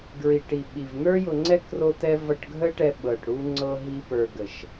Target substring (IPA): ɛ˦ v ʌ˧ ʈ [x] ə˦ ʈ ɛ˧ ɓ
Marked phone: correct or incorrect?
incorrect